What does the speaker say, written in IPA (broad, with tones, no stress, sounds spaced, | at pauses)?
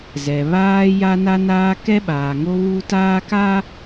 z ɛ˨ β aː˦ j a˦ n a˦ n aː˦ k ɛ˦ ɓ aː˨ ŋ o˦ β u˦ t aː˦ k a˦